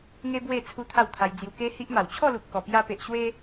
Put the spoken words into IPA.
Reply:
ŋ e˦ b w e˥˧ t͡sʰ u˦ t̪ʰ a˥˧ w t̪ʰ a˧ j d͡z j u˧ k e˦ h i˦ ʔ m a˨˩ w t͡ɕʰ ɔ˥˧ l u˨ p̚ k ɔ˨˩ p j a˧ p e˨ ʔ ɕ w e˦

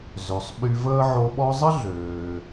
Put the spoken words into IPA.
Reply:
z ø˩ sˤ ɓ y˧ v əː˥ ʕ o˧ ɓ ɔ˥ zˤ ə˥ ɮ øː˩

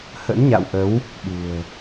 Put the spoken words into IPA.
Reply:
h ə̰˧˥ n ɲ a̰˧˨ w ʔ ə˨˦ w | ɓ ṳ˨˩ ə̯

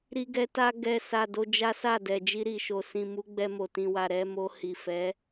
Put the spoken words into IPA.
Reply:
ɾ i˦ ɡ ɛ˦ t a˧ ɡ ɛ˧ s a˨ d o˧ d͡ʒ a˦ s a˦˨ d ɛ˨ d͡ʒ i˧ ɾ i˨ ʃ o˨ s ĩ˨ m u˨˦ ɡ͡b ɛ˧ m o˨ t ĩ˨ w a˨ ɾ ɛ˧ m o˧ h i˨ f ɛ˨˦

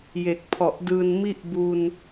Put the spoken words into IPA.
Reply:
j e˨˩ k̚ pʰ ɔ˨˩ ʔ d ɯː˧ n m i˥˩ ʔ b u˧ n

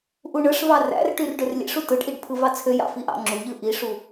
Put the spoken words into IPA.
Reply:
ʔ u ɳ ɯ ʂ v ɑ r æ̰ r ʈ y r ɖ ø r lʲ ḛ ʂ u t ɯ ɖ ʔ i ɖ pʰ ɯ v ɑ t͡sʰ ø j ɑ̰ f i ʔ ɑ̰ ŋ͡ǁ u ʎ ɯ ʔ i ʂ u

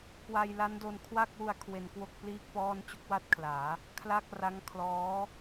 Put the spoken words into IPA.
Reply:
k w a˧ j l a˦˥ n d o˧ n kʰ w a˥˩ k̚ w u˧ a̯ kʰ w e˧ n k w o˥˩ k̚ p l iː˥˩ k̚ p ɔː˥˩ n t͡ɕ u˦˥ k̚ w a˥˩ t̚ kʰ l aː˩˦ | kʰ l a˥˩ k̚ r a˦˥ ŋ kʰ l ɔː˦˥

